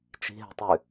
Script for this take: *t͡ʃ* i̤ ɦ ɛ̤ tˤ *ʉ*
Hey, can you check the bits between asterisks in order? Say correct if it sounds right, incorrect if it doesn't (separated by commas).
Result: correct, correct